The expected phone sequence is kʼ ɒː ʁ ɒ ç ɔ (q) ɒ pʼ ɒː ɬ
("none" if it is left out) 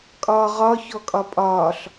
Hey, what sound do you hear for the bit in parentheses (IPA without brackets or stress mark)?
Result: kʼ